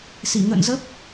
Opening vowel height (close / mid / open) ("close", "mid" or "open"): close